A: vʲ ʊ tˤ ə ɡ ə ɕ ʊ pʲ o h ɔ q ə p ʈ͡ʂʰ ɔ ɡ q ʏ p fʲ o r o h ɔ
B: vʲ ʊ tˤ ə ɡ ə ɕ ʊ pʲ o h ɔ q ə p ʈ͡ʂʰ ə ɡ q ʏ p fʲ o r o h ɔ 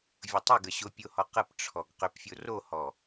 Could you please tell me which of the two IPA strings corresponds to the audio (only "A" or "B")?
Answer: A